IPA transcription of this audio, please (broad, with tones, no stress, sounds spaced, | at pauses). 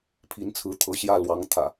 pʰ i˨˦ n t͡sʰ ɹ̩˨˦ t̪ʰ ɤ˨˦ ɕ j ä˥˨ l w ɑ˨˦ ŋ t̪ʰ ä̰˨˩